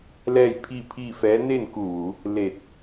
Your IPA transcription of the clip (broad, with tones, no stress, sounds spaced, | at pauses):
l ɛː˥˨ j pʰ i˥˨ pʰ iː˥˨ f ɛː˧˥ n e˥˨ n k u˧˩ ʋ u˩˧ | l e˧˩ t̚